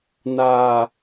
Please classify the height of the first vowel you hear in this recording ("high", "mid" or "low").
low